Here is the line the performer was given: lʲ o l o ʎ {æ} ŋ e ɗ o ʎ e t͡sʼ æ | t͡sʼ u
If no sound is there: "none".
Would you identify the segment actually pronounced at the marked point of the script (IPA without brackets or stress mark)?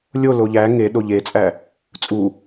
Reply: æ